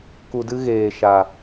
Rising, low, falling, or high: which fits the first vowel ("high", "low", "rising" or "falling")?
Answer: low